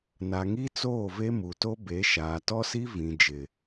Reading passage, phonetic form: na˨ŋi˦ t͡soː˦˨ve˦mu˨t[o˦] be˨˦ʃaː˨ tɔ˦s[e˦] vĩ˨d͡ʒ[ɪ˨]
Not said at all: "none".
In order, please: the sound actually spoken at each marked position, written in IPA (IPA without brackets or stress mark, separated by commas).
o˦, i˦, ɪ˨